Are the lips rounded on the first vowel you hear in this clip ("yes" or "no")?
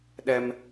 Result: no